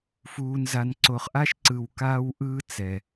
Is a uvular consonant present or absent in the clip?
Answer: present